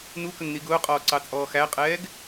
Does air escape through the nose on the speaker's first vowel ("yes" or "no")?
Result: no